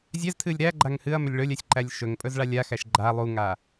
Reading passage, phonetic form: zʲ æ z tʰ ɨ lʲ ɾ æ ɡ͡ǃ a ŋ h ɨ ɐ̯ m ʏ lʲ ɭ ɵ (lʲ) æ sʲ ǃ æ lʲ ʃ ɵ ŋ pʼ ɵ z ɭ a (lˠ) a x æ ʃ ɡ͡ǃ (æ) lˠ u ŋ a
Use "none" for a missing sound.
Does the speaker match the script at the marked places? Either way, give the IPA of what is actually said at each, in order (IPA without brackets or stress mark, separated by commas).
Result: lʲ, lʲ, a